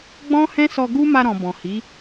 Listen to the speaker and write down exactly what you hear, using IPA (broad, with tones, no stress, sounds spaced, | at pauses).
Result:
ɡ͡b ɔ̃˦ h ɛ̃˦ s ɔ˧ ɡ u˦ m a˧ ɾ ɔ̃˨ b ɔ̃˨ h i˨˦